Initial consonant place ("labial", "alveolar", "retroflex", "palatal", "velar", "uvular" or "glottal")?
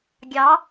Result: velar